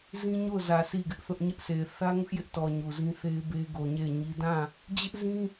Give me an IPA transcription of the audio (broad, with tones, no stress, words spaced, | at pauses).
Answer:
zĩ˦ɲo˦˨ʊ̯zä˨ sʰi˦˨ɡɪ˦ʔθʊ˦ʔ ɲɪ˦ʔsʰe˨ɪ̯ θä˦ŋʊ˦ʔjɪ˦ʔtɔ˨ ɲu˨zĩ˦ θe˦ɪ̯be˦ɡo˨ ɲe˦˨ɪ̯ɲi˦ dã˦˨ | d͡ʑɪ˦ʔzĩ˦